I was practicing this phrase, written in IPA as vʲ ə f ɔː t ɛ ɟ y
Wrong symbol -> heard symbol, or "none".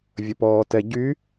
f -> p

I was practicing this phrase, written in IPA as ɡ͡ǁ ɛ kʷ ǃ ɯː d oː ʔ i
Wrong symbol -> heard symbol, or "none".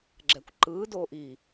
none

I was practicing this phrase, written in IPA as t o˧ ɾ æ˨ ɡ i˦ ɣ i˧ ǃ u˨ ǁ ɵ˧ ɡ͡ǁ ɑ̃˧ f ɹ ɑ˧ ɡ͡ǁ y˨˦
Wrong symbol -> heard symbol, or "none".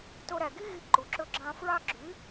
none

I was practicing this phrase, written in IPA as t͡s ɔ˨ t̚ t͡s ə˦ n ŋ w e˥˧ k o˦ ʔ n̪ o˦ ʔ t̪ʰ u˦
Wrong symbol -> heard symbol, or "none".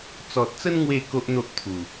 u˦ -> u˨˩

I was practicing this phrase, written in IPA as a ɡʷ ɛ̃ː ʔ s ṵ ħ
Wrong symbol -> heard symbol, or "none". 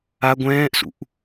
ħ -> ʔ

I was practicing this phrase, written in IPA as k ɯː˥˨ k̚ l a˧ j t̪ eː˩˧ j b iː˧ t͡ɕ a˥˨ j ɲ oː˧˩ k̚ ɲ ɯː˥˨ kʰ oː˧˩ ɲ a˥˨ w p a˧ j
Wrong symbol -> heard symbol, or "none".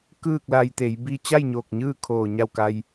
p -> k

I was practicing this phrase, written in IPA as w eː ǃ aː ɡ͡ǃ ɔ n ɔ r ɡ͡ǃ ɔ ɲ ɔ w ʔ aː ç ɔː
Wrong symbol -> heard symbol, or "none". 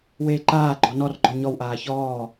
none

